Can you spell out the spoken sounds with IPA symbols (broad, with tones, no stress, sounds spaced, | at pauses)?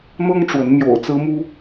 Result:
n̪ ɤ˦ ŋ ʈ͡ʂ w ə˨˦ n m j o̰˨˩ ʊ̯ t͡s ɹ̩˦ m u˦